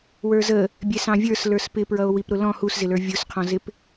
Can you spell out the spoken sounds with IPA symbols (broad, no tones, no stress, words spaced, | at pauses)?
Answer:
wə˞zə | bʲɛsɑ̃vʲə˞s lə˞spɪpɹʌo̯ wipɾʊlɔ̃ huszɪlə˞ vʲʊsqʰɔ̃zɪp